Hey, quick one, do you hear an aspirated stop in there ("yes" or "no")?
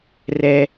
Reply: no